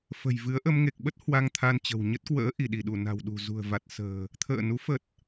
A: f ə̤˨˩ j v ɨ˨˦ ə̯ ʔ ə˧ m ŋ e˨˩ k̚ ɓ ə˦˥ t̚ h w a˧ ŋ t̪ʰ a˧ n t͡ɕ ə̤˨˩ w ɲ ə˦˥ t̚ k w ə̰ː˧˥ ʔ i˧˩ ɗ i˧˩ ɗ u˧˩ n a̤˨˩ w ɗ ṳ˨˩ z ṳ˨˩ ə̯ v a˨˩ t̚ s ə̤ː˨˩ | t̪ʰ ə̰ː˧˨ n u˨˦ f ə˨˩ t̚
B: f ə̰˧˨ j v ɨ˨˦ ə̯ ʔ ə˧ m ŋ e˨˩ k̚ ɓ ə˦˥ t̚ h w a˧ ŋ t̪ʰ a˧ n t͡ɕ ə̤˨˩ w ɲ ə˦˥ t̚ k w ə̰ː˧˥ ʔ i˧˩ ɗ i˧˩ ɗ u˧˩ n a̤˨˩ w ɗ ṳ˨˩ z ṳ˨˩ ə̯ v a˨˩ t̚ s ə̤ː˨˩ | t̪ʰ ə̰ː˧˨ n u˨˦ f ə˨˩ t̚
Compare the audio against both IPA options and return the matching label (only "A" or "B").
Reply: A